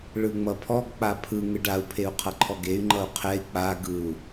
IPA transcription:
ɭɯŋ͡mʌpʰɔɡ k͡papʰɯ ŋɯɖau̯ pʰeu̯qʰʌǃʰɔɡey̯ ŋ͡ǃʌu̯qʰɛi̯ k͡pa ɡɯu̯

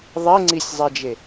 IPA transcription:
ðˤeŋ͡ǀisʲzˤed͡ʒe

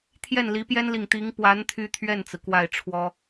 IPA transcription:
t̪ʰjɛ˥˩nli˧˥pjɛ˥nli˨ŋ t̪i˧˥ŋpwa˧˥n t̪ʰy˥t̪ʰɥɛ˥˩nt͡sɹ̩˩ kwa˥˩ɪ̯ʈ͡ʂʰwɔ˥

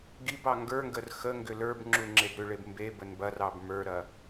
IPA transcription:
ɡibɑ ŋɡə˞ŋɡər xəŋɡʏ lə˞bŋ͡ǁuŋ͡ǁeb ɾʏɭeb mbebən bɐrɑb mə˞ɾɐ

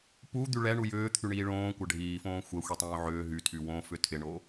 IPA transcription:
pud̪y ɭɛɳu jʏːt̪ʰyɳiː ɭõːkʷɐ ɖʱiːfõː xʷɛxʷitˤõː ʕʏː ɦytʰy wõfʏ tʰɪɳo

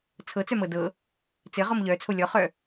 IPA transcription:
t͡sʰɤt͡sœmɤ dɤ | t͡sɘʁɔm ʎœt͡sʰo lʲɔχœ

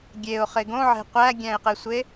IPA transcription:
ɡʲeʊ̯χe ɡõʕe̤ qʷæɡʲæ̃ɪ̯qesʷe

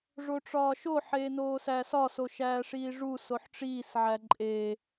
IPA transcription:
ʐoʈ͡ʂɒːʃo ħeːnoːsæːsɒ soʃæːʂiːʐu soħʈ͡ʂiːs ʕæǃʼeː

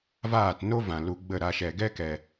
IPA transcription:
vaː˦˨tno˦vã˨ lu˧ɡ͡bə˦˨ɾa˧ ʃɛ˨ɡɛ˦kɛ˨

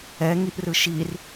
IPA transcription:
ɛŋiʔrɯ ʃir

